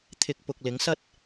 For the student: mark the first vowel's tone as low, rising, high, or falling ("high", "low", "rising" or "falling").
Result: low